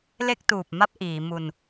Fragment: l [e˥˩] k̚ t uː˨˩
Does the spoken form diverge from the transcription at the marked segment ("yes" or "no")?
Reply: no